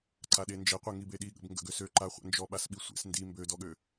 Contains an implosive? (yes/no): yes